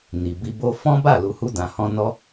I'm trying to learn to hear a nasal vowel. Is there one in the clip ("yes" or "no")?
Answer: yes